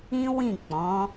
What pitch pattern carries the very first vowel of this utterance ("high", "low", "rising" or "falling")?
high